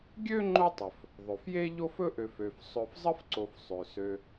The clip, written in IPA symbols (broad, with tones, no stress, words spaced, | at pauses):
ɡʲø˥ ŋ͡ǃo˥tˤɵ˩f | ðˤɵ˩fje˥ ʎo˥fɵ˥ʔø˨f ø˨fsˤɵ˦f zˤə˥fǀo˨f sˤø˩sø˨